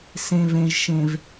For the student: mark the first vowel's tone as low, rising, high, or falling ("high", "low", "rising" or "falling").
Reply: low